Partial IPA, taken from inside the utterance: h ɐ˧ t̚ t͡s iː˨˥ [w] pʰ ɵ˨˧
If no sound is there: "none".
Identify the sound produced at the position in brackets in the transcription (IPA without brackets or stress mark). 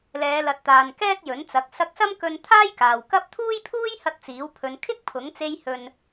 w